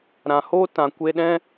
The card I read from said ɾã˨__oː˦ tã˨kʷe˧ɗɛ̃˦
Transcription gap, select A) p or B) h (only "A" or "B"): B